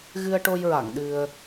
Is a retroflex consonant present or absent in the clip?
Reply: present